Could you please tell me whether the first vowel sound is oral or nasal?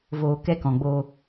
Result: oral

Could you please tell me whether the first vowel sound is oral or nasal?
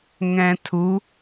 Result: nasal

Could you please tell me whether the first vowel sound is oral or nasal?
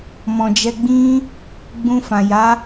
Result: nasal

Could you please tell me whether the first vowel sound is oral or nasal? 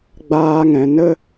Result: oral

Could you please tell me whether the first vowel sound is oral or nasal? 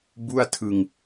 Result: oral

